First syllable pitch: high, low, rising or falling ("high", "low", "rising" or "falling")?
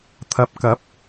low